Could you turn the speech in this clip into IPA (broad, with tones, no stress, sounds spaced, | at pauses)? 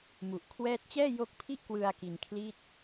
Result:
m u˨˩ ʔ kʰ w ɛː˦˥ t̚ t͡ɕ ɛː˥˩ j o˦˥ k̚ pʰ i˥˩ ʔ k w ɯ˧ a̯ k i˧ n kʰ l i˥˩ t̚